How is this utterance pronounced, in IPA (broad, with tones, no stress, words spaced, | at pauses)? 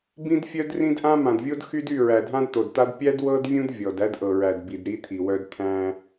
bĩ˦dfʲœ˦drĩ˦dʔã˦ mã˨dvʲo˦d xy˦dy˦˨ ɹæ˨dʱã˦dt̪o˨dt̪a˦d pʲæ˦d wɤ˦dvʲũ˦d vʲɔ˨d æ˦dʔɤ˨ɹæ˨dbi˨d ɾi˦t̪ʰi˨wœ˦d t̪ʰæ̃˦